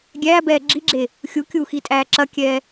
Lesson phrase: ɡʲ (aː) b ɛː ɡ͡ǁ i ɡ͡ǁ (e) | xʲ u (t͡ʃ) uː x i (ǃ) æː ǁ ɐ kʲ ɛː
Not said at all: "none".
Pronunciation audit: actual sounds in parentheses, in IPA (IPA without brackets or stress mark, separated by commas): æː, e, kʲ, tʼ